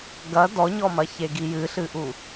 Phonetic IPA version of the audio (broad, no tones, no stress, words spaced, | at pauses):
ɡɐ dɔɲɔmɐçe ɡijɨɬɨʔu